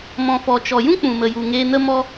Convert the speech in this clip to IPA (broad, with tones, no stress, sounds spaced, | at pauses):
m ɔ̃˨ f ɔ˨ t͡ʃ ɔ˨ j ũ˦ k͡p ũ˨ m ə˨ j u˨ ŋ eː˧ n ə˦ m ɔ˦